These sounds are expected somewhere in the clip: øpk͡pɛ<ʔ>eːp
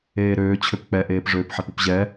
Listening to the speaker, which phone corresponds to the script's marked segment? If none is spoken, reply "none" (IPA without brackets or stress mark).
ʔ